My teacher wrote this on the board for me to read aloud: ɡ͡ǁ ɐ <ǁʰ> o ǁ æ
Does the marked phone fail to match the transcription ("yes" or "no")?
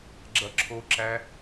no